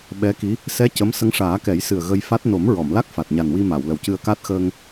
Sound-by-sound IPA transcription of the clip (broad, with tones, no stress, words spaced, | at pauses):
ɓɛ˧˥ki˧˥ | sɛ˧˥ cə˧˥m sə˧˥ŋʂaː˨˩˦kɛ˨˩˦jsɨ˨˩ə̯ ɣə˧jfa˦˥t̚ no˨˩˦m ɹɔ˨˩˨mla˦˥k̚ fa˨˩t̚ɲa˨˩nwi˧ ma˨˩˨w lə˨˩wcɨ˧ə̯ka˦˥t̚ xəː˧ŋ